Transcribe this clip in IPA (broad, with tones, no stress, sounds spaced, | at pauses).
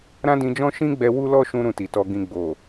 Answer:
ɾ ã˦ d ĩ˧ d͡ʒ ɔ̃˦ ʃ ĩ˦ ɡ͡b ɛ˧ w u˦ l ɔ˦ ʃ ũ˧ ɾ ũ˧ t i˨ t ɔ˧ ɡ ĩ˧ ɡ͡b o˨